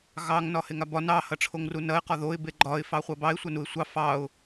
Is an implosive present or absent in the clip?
absent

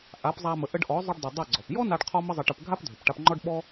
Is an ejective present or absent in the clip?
absent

